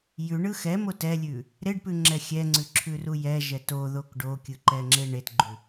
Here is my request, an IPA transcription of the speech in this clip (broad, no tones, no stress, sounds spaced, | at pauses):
j ʉ ɳ ɯ x ɛ m o t ɛ lʲ ʉ | ɾ e ɖ p ʉ ŋ͡ǁ ɛ xʲ ɛ ŋ͡ǀ ʉ ǁʰ ʉ r u j ɛ ʒ ɛ t o ð o k ɖ o kʲ ɯ ǃ ɛ ŋ͡ǁ e ɳ e t ɡ͡ǃ ʉ